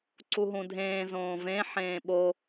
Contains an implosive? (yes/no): yes